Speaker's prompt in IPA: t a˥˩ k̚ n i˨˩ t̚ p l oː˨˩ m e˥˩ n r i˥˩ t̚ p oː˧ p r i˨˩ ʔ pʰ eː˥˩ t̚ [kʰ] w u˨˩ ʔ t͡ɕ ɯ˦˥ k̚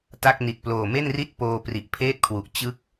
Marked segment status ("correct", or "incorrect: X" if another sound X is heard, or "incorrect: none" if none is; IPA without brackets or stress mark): correct